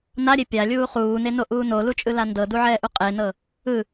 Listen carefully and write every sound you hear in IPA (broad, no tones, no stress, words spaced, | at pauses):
naɾʲe pʲalʲuː χuːnenoʔuː nolut͡ʃʼɯla ndɤduʕɛːʔu qʼenɤ | ɯ